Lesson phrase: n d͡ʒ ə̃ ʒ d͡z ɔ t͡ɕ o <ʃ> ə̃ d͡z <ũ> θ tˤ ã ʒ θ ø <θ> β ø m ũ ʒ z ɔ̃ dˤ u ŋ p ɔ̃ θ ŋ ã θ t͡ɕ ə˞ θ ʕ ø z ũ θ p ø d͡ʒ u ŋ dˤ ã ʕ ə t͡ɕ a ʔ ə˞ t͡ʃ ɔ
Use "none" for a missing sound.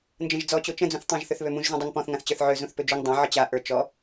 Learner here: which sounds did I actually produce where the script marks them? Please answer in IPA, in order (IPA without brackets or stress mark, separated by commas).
t͡ʃ, ũ, θ